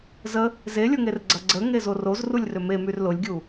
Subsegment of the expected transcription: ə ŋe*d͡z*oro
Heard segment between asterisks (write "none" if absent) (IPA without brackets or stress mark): z